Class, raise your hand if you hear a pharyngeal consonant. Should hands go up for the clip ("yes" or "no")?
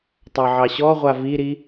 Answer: yes